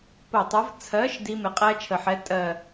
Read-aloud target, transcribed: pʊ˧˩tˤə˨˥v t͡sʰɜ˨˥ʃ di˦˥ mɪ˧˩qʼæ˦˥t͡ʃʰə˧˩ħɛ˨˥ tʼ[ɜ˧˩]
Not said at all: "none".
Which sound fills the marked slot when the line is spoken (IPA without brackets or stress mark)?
ɜ˧˩